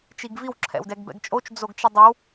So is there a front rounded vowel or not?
no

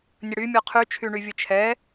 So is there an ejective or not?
no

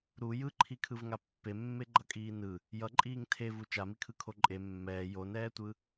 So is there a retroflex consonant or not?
no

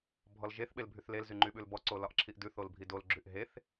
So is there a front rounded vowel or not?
yes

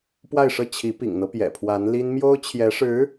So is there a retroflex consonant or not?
yes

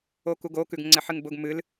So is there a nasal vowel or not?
no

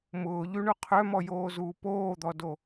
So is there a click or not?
no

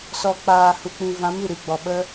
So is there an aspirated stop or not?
no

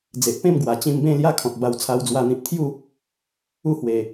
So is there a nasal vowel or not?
yes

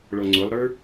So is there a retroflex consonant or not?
yes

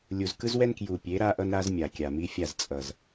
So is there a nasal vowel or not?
no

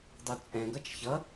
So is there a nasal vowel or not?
yes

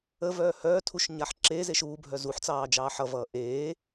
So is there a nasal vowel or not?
no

